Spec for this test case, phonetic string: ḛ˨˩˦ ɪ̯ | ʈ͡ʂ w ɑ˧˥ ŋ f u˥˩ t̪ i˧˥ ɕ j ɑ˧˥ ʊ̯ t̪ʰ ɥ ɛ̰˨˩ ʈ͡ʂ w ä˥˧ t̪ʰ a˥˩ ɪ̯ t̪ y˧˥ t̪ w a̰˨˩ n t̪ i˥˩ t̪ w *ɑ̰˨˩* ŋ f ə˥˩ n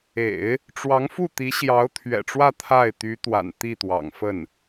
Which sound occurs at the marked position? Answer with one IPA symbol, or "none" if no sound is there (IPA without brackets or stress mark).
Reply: ɑ̰˨˩